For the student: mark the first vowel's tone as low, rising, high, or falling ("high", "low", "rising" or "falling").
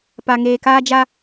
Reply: low